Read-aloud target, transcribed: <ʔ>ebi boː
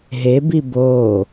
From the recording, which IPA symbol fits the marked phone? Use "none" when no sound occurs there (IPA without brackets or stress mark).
ɦ